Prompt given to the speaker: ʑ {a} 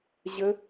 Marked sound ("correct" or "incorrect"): incorrect